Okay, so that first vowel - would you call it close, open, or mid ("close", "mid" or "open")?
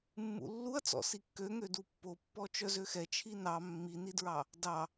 close